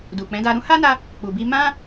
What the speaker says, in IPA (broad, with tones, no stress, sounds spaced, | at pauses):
d u˨ k͡p ɛ̃˨˦ d a˧ ɾ ũ˦ h a˦ n a˧ | k͡p u˨ b i˧ m ã˦